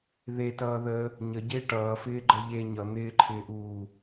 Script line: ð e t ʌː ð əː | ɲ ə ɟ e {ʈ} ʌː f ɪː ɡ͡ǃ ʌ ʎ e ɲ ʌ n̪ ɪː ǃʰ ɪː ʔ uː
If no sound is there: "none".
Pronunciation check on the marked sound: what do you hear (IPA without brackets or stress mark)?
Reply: ʈ